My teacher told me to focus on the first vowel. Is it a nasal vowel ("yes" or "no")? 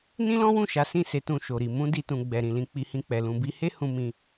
yes